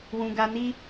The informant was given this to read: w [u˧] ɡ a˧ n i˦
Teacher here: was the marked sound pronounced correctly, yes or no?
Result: no